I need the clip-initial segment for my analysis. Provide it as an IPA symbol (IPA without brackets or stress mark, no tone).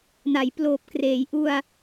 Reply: n